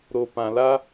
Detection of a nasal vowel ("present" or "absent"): present